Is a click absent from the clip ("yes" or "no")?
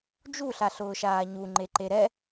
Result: no